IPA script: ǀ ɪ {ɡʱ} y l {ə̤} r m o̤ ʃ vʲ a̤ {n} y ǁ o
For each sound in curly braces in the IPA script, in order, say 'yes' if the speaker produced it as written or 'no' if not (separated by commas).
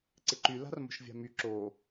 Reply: no, no, no